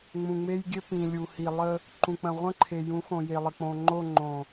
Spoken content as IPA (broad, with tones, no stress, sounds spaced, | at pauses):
ŋ͡m ũ˨ ŋ͡m e˦ j ɡʲ ɘ˦ p ĩ˨ lʲ u˨ h i˨ lˠ ə˦ | ǃ ũ˨ k͡p ə̃˨ ʁʷ ə̃˦ ǃʰ e˨ j ũ˨˦ x õ˨ j e˨ lˠ ə˨ k͡p õ˨ ŋ͡ǃ o˦˨ ŋ͡ǃ õ˨